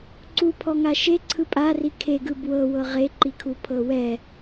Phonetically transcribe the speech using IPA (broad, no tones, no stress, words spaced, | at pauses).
ǀupʰɔŋa ʃeǀʰɯ pʼari kʰeɡɯ bwɤwɤ ʁeǃikʰupʰɤ wɛ